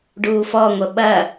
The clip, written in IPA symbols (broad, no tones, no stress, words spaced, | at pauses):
ɖuːfɔŋʷə ɓɐ